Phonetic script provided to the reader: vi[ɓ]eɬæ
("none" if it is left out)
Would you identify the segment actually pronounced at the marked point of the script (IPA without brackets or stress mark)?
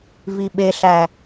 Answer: ɓ